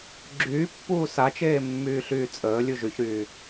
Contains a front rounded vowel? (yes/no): yes